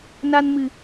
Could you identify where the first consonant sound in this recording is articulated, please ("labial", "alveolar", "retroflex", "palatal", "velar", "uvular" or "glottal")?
alveolar